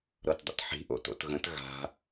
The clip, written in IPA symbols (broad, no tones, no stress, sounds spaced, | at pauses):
ɾ ɤ t dˤ ə̰ t ħ i̤ ʔ o̰ t o̰ t ɣ ə̃ t ɣ a̤